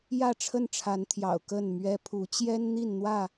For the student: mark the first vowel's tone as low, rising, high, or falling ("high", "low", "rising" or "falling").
falling